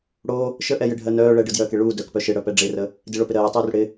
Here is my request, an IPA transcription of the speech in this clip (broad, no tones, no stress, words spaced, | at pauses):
ɽo | ʃəʔɛjɪɖʱɜ nœː ɭɛɖɯdjœːke ɭuː dœkpœ ʃɪɽœpɛ ɖ͡ʐerə | dɪɭopɪ ɾɜːtˤuːr ɽɪ